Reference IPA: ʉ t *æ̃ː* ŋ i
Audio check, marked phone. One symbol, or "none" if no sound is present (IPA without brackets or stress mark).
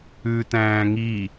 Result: æ̃ː